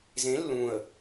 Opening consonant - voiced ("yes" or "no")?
yes